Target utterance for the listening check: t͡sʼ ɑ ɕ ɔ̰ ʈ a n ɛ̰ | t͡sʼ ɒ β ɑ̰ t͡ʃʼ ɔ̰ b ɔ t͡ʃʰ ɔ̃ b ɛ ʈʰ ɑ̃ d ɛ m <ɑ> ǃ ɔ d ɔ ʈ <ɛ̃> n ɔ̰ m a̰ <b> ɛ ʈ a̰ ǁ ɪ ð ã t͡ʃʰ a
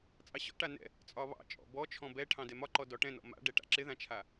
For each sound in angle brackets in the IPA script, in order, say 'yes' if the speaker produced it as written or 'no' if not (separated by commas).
no, yes, no